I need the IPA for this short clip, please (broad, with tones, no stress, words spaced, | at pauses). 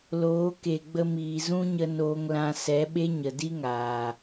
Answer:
loː˨˦ke˨ɡ͡bə˧miː˨ zũ˦ɲə˧ noː˧ŋlã˧ sɛ˨˦ɓe˦ɲə˨ di˦ŋaː˨